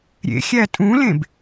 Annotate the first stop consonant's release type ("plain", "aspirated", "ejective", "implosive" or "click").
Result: ejective